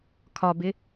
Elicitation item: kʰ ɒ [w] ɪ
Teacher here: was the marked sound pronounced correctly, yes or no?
no